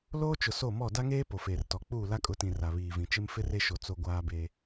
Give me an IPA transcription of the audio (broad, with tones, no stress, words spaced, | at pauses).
loː˦t͡ʃʊ˨ so˦˨mɔ˦˨ da˦ŋeː˦ po˨feː˨rtɔ˨ k͡puː˦˨la˦kʼʊ˨˦tĩ˨ ra˨βiː˨vĩ˨t͡ʃɪ˦m fɪ˦re˦ʃo˨ t͡so˦ɡʷaː˦beː˦